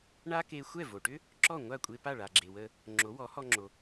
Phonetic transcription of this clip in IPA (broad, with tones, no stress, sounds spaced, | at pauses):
ɳ a˥ k e˧ xʷ ɛ˥˩ v o˩ ʈ ʏ˥ | ǁ ɔ˥˩ ŋʷ a˥˩ kʷʼ e˧ p a˥˩ ɭ a˩ ɡ͡ǁ e˩ w ə˧ | ŋ͡ǁ o˩˥ w ɔ˩˥ h ɔ˧ ŋ͡ǁ o˩